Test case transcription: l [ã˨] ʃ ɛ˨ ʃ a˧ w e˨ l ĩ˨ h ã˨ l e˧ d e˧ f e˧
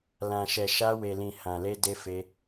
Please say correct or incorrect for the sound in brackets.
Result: correct